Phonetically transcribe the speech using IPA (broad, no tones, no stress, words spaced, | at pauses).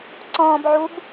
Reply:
ǀɔ̃ːbʕub